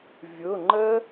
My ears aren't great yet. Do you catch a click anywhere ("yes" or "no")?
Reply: yes